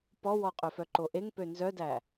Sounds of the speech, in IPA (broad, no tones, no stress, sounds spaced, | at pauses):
p ɔ w ɔ qʼ ɵ f œ ǃ o ʔ e ŋ p ø n z œ d æ